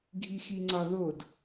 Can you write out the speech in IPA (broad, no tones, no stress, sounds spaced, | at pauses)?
ɡʱ i x i ŋ͡ǀ ɒ ð o d